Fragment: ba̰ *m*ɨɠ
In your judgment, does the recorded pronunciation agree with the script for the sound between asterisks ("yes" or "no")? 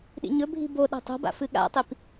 no